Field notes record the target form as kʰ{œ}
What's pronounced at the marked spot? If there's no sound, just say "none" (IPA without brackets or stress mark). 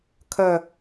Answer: œ